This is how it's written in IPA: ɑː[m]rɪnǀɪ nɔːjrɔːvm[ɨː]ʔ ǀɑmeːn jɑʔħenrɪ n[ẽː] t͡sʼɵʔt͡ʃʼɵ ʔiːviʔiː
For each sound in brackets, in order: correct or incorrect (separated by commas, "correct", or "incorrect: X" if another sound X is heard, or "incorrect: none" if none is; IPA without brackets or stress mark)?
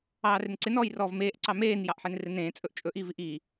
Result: incorrect: none, incorrect: eː, correct